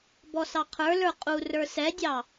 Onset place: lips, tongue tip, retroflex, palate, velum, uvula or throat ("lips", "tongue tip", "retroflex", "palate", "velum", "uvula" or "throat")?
lips